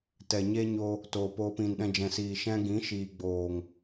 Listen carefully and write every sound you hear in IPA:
t ɛ˨ ɲ e˦ ɲ o˧ | t oː˨ p oː˧ p ĩ˨ n ɗ ɛ̃˧ d͡ʒ ɛ̃˨ s iː˨ ʃ ɛ̃˦ ɡ ĩ˨˦ ʃ iː˨ ɡ͡b oː˨ ŋ

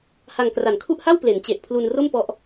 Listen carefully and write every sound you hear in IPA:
h a˧ ŋ k r a˨˩ n kʰ u˥˩ ʔ h a˥˩ w p l e˩˦ n t͡ɕ e˨˩ ʔ pʰ l u˧ n r o˥˩ m p ɔ˦˥ ʔ

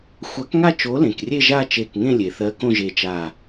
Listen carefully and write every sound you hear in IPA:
xʷ a˨˥ k ŋ a˥˧ t͡ʃ o˨˥ l ẽ˩ k rʲ e˥˧ ʒ a˥˧ t͡ʃ e˧˩ k ŋ ẽ˥˧ lʲ e˩ θ ɜ˨˥ k õ˥˧ ʒ e˧˩ t͡ʃ a˧˩

